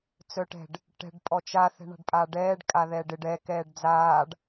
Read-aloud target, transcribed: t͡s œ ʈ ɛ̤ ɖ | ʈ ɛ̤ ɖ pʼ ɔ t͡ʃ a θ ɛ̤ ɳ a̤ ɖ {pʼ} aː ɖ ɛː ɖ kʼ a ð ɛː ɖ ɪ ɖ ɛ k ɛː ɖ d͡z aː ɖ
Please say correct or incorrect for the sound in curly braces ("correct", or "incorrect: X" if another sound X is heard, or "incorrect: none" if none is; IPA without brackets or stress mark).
correct